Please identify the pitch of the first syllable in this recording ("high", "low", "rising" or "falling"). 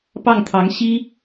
falling